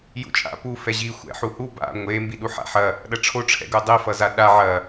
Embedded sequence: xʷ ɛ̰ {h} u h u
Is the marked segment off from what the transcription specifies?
yes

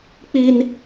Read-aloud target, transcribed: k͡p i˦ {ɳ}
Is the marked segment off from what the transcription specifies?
yes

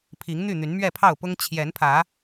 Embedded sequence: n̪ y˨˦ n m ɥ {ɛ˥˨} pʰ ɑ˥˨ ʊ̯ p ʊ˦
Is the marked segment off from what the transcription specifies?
no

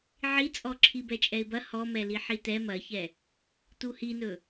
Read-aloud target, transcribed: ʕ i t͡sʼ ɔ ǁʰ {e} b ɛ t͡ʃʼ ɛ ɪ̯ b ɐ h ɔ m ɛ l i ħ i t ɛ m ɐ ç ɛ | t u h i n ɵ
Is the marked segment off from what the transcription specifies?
yes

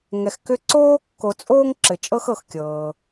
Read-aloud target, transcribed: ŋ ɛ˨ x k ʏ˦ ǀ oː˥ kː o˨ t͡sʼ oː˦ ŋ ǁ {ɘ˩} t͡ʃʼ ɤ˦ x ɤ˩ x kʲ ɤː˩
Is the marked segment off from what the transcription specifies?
no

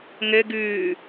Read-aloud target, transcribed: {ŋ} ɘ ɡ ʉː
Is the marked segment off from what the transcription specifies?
no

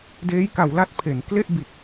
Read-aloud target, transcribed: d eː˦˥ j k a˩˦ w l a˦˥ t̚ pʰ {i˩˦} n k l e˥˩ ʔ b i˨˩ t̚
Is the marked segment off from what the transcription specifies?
yes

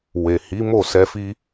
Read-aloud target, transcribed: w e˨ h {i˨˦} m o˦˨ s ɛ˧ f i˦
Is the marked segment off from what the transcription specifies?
no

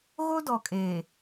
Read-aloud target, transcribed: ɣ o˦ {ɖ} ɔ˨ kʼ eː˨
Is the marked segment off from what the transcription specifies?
yes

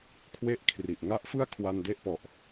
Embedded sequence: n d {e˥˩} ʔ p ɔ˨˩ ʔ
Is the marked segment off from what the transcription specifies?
no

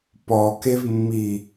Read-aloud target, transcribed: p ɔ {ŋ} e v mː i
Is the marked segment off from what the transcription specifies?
yes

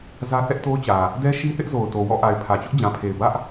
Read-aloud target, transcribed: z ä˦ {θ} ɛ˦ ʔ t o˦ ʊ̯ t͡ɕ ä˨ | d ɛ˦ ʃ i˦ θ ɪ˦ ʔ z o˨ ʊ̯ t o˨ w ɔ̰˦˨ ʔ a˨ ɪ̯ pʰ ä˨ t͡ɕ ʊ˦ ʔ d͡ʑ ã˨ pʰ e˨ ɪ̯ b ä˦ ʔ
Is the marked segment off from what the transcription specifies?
no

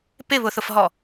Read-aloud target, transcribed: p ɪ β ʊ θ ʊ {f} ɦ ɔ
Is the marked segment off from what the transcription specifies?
no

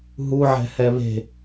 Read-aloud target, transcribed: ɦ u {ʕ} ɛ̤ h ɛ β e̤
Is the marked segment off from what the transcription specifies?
no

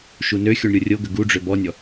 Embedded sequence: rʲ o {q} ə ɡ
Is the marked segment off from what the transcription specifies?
yes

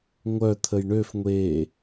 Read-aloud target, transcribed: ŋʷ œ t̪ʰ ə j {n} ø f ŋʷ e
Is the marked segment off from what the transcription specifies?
yes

